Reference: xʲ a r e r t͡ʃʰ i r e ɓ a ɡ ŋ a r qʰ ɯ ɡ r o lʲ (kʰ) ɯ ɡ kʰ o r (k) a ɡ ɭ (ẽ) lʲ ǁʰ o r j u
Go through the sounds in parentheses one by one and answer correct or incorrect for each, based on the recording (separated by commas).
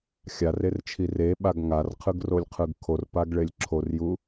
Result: incorrect, incorrect, incorrect